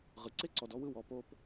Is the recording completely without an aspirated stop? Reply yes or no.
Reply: yes